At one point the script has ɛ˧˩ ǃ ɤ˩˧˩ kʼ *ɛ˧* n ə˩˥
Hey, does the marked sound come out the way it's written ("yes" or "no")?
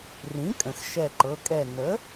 no